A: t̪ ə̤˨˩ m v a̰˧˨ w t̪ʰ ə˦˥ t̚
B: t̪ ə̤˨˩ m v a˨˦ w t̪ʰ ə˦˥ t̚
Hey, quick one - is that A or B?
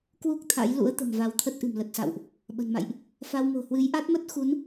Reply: B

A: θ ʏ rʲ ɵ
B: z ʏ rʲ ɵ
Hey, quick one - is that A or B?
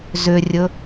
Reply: B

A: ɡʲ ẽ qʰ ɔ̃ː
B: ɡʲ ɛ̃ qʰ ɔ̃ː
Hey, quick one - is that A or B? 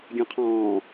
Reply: B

